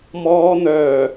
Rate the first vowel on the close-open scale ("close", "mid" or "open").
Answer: mid